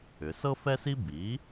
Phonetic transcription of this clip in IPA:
ʏ˩˧ s ɤ˥ f ɛ˥ s i˥ b iː˩˥

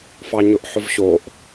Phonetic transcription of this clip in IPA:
f ɑ ɲ ʊ ʔ ħ ʊ v ɕ o ʔ

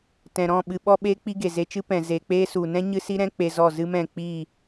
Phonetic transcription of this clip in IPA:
t ɛ̃˨ ɾ ɔ̃˦˨ ɓ ɨ˨ ɓ ɔ˧ ɓ eː˦ k͡p i˦ ɡ e˨ z e˧ t͡ʃ ɨ˦ p ɛ̃˨ z e˨ k͡p eː˦ s u˨ n ɛ̃˦ ɲ ɨ˦ s i˦ ɾ ɛ̃˦ k͡p e˧ z ɔ˦˨ z ɨ˦ m ɛ̃˦˨ k͡p iː˦˨

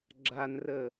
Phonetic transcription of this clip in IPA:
ɡ͡ǁ a n r ə

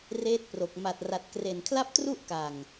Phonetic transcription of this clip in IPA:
r eː˦˥ t̚ p r o˨˩ k̚ m a˨˩ t̚ r a˨˩ t̚ k r e˨˩ n kʰ l a˥˩ p̚ t r u˥˩ ʔ k a˨˩ ŋ

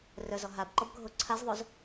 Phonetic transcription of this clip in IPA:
r œ z ɔ ɦ a b ǃ ɔ b ɡʱ o ǀʰ a z ðˤ o z

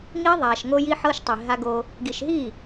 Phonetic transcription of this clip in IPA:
ŋ i˦ ðˤ a˨ ʃ ŋ o˦ j i˦ ħ ɤ˦ ʃ tˤ i˨ ɦ a˦ ɡ o˦ | ɡ i˨ ʃ ɦ i˦˨

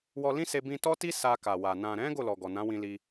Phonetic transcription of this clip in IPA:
w ɔ˧ l ĩ˦ s e˧ b ĩ˧ t ɔ˦ t i˦ s a˧ k a˨ w a˨ n ã˨ ɾ ɛ̃˨˦ ɡ o˦˨ l ɔ˨ ɡ ɔ˨ n ã˨˦ w ĩ˧ l i˧

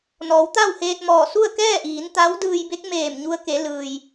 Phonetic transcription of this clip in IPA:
n ɔː˩˧ w t̪ a˥˨ w h eː˧ t̚ m ɔː˧˩ s u˥˨ ə̯ k ɛː˥˨ ʔ iː˩˧ n t̪ a˧˥ w d ɯː˧ j b e˧˥ k̚ m eː˧˩ m ɲ u˧ ə̯ k e˩˧ l ɯː˩ j

